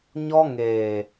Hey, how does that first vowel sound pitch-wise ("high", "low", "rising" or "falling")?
high